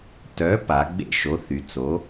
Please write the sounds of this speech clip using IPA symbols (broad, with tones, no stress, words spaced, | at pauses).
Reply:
tœ˨˥ pa˩˧ɡ͡bḛ˦˨ʃo˨˥θy˩˧ t͡so˩˧